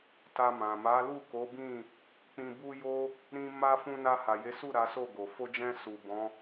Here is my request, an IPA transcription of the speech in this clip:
t a˧ m ã˨ m a˨˦ l u˦˨ k o˨˦ b ĩ˦˨ | k͡p ĩ˧ b u˦ j o˦ | ɾ ĩ˧ m a˧ f ũ˧ n a˧ h a˨ j e˨˦ s u˦˨ ɾ a˨˦ s o˦˨ ɡ o˨ f o˧ d͡ʒ ɛ̃˧ s u˨ b ɔ̃˨˦

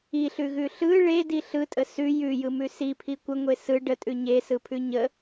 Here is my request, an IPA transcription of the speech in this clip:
i ɬ ʉ ɣ ʉ ɬ ɯ ɭ e d i ɬ ɯ tʼ ə s ʉ j ʉ j ɯ m ʉ s i pʰ i kʷ ə ŋʷ e s ɯ ɖ ə tʼ ʉ ɲ e s ɯ pʰ ʉ ɲ ə

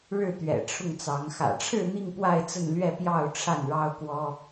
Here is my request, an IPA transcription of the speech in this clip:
ɻ ɻ̩˥˩ t̪ ɥ ɛ̰˨˩ ʈ͡ʂʰ ʊ˥˩ ŋ t͡s ɑ˧˥ ŋ x ä̰˨˩ ʈ͡ʂʰ ɻ̩˥˧ n̪ i˥˧ ŋ p w a˥˧ ɪ̯ t͡s ə˥˧ n l ɥ ɛ˥˧ p j ɑ˥˧ ʊ̯ ʈ͡ʂʰ a˥˩ n ɻ ɑ˥ ʊ̯ k w ɔ˥

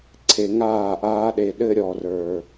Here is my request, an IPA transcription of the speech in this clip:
ǀʰ e˨ ŋ aː˦˨ ʔ aː˦ ɗ e˨ ɗ ɘ˦ ɾʲ ɔː˨ r ə˞˨

